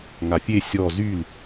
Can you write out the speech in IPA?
ŋ a fʲ e sʲ ɔ z y l

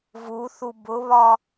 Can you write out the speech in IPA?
v u θ u b ʊ β ɒ

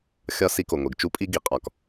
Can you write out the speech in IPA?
xʲ ɒ˦ s i˦ k o˨ ŋʷ e˨ ɡ t͡ʃ u˦ pʼ i˦ ɡ i˨ qʼ ɒ˨ k

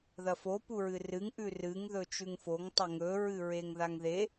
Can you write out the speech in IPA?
ð ɐ f o p u ɹ ɨ r ɨ ŋ ʔ ʉ r ɨ ŋ ð ɵ t͡ʃ ʉ ŋ f o ŋ tˤ ɵ ŋ ɵ ɹ ɨ ɹ e ŋ ð a ŋ ð e

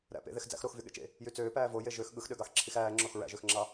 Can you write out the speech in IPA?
ɾ æ̰ p ḛ ð e x d͡z æ̰ x ɾ o x v y ɠ ḛ t͡ʃ ḛ | j y t͡s øː p æː v o j e ʒ ø x ɠ ɯ x ɗ ø ɡ ɑ x ǁʰ i x æː ŋ͡ǁ o x ɹ æ̰ ʒ ø x ŋ͡ǁ ɑ

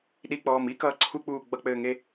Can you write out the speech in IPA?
ɗ i k͡p ɔː m i k ʌː ǀʰ u k͡p uː ɡ͡b ʌ k͡p ɘː ŋ e

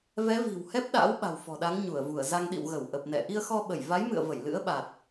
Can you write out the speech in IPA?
v ɛ˨˦ v i̤˨˩ w h ɛ˦˥ p̚ ɗ a̰ː˧˥ w ɓ a̤˨˩ w f ɔ̤˨˩ ɗ a˨˦ ŋ ɲ u˧˩ ə̯ v u˧˩ ə̯ z a˧ ŋ ɗ ḭ˧˨ w ɣ ə˧˩ w ʔ ə˨˩ p̚ n ɛ̰˧˨ ʔ i˧ ə̯ x ɔ˧ ɓ ə˧˩ j v a˨˦ j m ɨ̰˧˨ ə̯ v ə˧˩ j l ɨ̰˧˥ ə̯ ɓ a˨˩ t̚

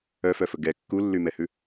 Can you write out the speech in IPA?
œ f œ f ɵ ɡ ɛ kː u lː y m ɛ h ʉ

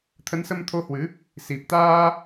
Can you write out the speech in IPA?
t̪ʰ ə˨˦ n s ə˧ m t̪ʰ o˧ h w ɨ˨˦ | s i˨˩ p̚ t̪ aː˧

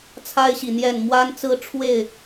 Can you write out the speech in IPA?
t͡sʰ a˦ ɪ̯ ɕ i˨ n̪ j ɛ˥˨ n m w a˦ n t͡s ɹ̩˦ ʈ͡ʂʰ w e˥˨ ɪ̯

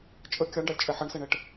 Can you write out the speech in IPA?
t͡ʃʼ ə kʲ ɑ ɳ ɖ ɑ lʲ t͡ʃʼ ɛ ħ ʌ ɳ s ɛ ɳ ɛ ʈ

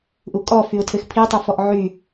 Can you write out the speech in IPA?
ʔ u kʼ ɔ f y ʊ̯ tʰ ɘ x pʰ i tˤ ɘ f ɔ ʔ ʕ y

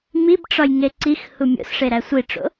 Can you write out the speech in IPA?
m i b ʈ͡ʂ ɒ j ŋ e ǀ i x h u mʲ o̰ s ʂ e ɾ æ sʷ i ʈ͡ʂ o̰

